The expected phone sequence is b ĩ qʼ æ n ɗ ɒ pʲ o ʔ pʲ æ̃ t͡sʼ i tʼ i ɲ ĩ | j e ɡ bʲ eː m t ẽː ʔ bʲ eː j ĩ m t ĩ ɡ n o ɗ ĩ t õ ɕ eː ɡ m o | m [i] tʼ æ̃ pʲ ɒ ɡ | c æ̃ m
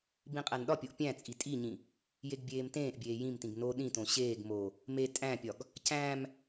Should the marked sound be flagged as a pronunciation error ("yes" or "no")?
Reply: yes